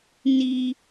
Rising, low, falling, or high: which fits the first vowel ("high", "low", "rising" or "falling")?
high